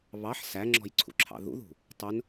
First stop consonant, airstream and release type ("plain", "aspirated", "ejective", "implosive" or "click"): click